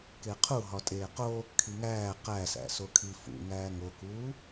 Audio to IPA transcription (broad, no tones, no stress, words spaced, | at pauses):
keqʰuɦɒ tʼeːqo | kʰiŋæː qæsæ̰ sokʰifṵ ŋæːŋokuː